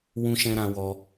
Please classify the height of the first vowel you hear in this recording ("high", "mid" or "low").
high